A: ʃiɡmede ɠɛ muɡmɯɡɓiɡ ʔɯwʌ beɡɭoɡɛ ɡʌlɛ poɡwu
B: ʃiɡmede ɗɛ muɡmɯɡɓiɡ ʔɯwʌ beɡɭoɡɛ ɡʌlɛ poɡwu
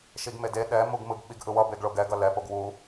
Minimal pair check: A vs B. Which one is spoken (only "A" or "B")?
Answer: B